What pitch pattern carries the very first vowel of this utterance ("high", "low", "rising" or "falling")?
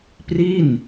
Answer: falling